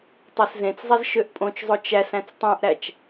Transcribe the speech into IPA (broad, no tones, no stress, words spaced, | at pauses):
tˤæszẽt͡szˤez ʃøʔpʼõt͡ʃzˤo t͡ʃæsæ̃t͡s tˤæ̃ʔɾæt͡ʃ